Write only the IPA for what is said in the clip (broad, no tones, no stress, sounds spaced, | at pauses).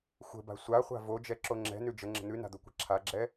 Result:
xʷ ə̤ b a̤ sʷ a χʷ a̤ v o d͡ʒ ɛ ǁ o ŋ͡ǁ ɛ̤ n ʉ d͡ʒ ə ŋ͡ǁ ə̤ n̪ ʉ n a̤ d̪ o kʷ a̤ ǁʰ a ɡ͡ǁ ɛ